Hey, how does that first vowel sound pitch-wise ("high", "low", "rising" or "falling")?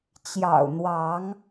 low